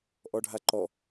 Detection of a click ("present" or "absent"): present